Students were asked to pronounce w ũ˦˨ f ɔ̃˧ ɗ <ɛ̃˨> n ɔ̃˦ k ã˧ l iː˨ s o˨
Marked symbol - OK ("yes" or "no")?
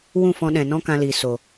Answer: yes